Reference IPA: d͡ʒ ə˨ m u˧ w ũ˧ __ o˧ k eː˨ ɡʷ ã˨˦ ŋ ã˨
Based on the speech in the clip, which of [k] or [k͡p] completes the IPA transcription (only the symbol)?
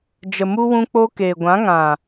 k͡p